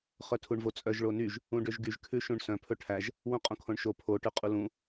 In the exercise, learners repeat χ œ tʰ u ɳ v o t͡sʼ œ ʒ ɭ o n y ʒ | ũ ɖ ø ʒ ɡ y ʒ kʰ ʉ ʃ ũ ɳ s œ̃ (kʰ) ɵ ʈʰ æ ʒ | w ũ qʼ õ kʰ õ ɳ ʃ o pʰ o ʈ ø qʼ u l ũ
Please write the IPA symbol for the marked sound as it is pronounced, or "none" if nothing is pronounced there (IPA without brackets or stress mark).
pʰ